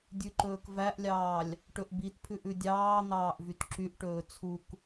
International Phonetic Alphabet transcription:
dʲʉǃɵːkvæʔlʲɑːlʲ | ʈɵʔbitpʰʉʔ ʉdʲɑːn̪ɑːʔ vytǁyʔʈɵː t͡sʰuk

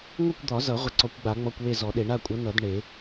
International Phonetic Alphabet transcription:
ŋʷʌ˥˨kʷd̪ɒ˨˩˦zʌ˨˩˦ ʁʷə˧˩ǀɔ˨˩˦kʷɡ͡ba˨˩˦ ŋ͡mɔ˧˥˧kʷwe˥˨zɔ˨˩˦ɗe˨˩˦ ɳa˥˨kʷʼʌ˨˥ nʌ˨˩˦d ɳe˨˩˦

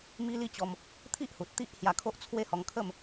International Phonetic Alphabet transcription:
mi˦li˦t͡ɕɔ˧m | t̪ʰi˦ʔhu˨t̚ t̪i˦ʔ hja˧kʰo˦ʔt͡sʰwe˥˧hɔ˧ŋ kʰə˥˧m

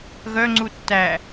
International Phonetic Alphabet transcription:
ɣœŋ͡ǀu tːæ

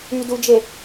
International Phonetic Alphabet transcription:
ydud͡ʒe

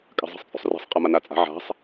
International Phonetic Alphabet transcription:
kʼa̤zˤɛ̤sˤt͡sʼṳsˤrɛ̤sˤ qʼɛmanat͡sʼa̤ ʕa̤sˤ

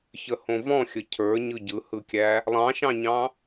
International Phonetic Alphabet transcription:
çəhõvɔ̃ xʲəcʰə˞ɲɯ ɟɯhɯkʲæ | lˠɑ̃ʃɑ̃ɲɑ̃

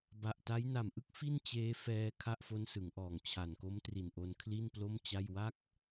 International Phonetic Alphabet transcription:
ba˨˩ʔta˦˥j na˨˩mʔɯ˦˥k̚ fi˥˩n t͡ɕeː˦˥fɛː˧ kʰa˥˩ʔfo˦˥nsɯ˩˦ŋʔɔː˨˩ŋ t͡ɕʰa˨˩nko˦˥mtri˨˩nʔo˧n kʰli˥˩nplo˥˩mt͡ɕa˥˩j wa˥˩k̚

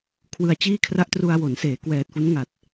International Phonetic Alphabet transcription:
kʰwɯ˧a̯t͡ɕiː˥˩kʰra˥˩ʔ tru˧a̯wo˩˦n seː˩˦ kwɛː˨˩t̚fu˦˥nŋa˨˩t̚

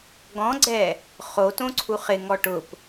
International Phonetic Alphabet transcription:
ɡɔ̃ɡ͡ǀɛ | χotõǀʰu χɪŋɔ ʈʊp

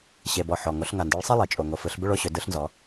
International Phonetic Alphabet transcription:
ɕe˩bɔ˩ ħɔ˩ ŋo˩˧ɬŋa˩ndɯ˩˧ɭsˤi˦˨ lˠi˩ t͡ʃʼo˩ŋo˩fɯ˩˧ɬ bʏ˦˨ɭo˦˨ɕʏ˩˧ dɯ˩˧ɬnzɔ˩˧

